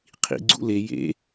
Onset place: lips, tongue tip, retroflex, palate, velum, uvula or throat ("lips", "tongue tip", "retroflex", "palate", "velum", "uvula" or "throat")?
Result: uvula